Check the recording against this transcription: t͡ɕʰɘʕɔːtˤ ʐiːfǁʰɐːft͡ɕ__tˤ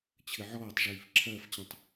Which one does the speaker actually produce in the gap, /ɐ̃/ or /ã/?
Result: ɐ̃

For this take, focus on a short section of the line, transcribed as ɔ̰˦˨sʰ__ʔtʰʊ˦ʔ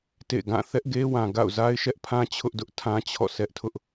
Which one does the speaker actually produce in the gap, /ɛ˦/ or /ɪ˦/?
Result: ɛ˦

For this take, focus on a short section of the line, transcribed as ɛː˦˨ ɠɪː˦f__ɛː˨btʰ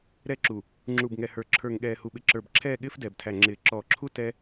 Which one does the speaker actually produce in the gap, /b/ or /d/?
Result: d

